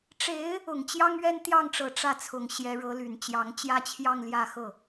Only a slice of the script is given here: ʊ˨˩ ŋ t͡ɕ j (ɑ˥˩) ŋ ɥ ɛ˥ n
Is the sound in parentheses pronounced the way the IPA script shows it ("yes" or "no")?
no